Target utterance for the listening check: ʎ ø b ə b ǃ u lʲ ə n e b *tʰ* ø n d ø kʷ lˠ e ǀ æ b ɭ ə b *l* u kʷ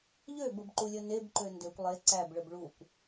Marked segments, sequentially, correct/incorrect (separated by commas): incorrect, incorrect